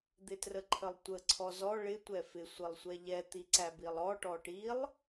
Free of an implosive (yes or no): yes